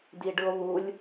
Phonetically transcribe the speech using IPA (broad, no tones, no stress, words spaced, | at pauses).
diɖɯo̯βulʲ